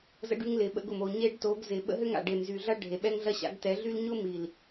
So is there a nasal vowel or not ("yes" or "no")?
no